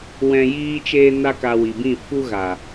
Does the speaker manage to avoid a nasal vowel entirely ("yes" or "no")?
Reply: no